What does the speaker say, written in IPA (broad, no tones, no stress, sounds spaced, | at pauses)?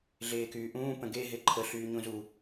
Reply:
ɮ eː k yː ʔ ũː p ə̃ ɡ e ɦ e ǃʰ ə ɬ yː ɲ ũ z u